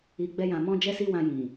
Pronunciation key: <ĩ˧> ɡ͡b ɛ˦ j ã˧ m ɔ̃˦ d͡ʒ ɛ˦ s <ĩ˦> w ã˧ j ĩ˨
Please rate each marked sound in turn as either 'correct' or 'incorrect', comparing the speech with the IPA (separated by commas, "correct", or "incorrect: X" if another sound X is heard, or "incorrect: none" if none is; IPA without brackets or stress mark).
incorrect: i˧, incorrect: i˦